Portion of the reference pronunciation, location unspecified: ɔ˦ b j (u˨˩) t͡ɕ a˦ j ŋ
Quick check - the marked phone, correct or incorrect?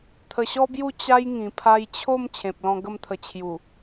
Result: incorrect